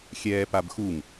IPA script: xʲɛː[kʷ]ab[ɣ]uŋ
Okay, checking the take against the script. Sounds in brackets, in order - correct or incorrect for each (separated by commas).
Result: incorrect, incorrect